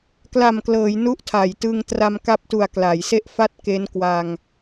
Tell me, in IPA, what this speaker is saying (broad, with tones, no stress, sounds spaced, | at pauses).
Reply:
k l a˨˩ m k l ɤː˩˦ j n u˦˥ ʔ tʰ a˩˦ j t ɯ˧ ŋ t r a˧ m k a˦˥ p̚ t u˨˩ a̯ k l a˩˦ j s e˦˥ ʔ f a˦˥ t̚ k e˦˥ n k w a˧ ŋ